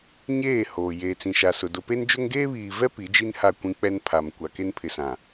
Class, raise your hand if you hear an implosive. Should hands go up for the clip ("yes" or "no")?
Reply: no